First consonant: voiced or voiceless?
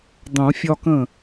voiced